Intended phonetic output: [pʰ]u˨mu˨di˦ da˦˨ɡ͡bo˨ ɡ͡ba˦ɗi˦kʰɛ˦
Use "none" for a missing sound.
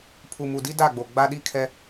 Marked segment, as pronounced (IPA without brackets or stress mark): pʰ